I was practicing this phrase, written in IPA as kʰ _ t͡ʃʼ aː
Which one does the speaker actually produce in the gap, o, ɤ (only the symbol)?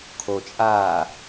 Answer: o